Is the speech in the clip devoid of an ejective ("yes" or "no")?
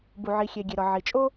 no